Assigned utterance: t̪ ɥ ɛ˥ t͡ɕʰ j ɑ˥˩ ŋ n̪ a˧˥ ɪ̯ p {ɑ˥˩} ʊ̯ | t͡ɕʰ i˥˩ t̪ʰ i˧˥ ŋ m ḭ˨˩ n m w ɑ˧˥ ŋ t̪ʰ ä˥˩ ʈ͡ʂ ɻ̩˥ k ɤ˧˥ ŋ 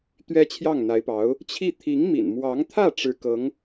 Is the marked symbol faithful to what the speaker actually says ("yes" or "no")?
no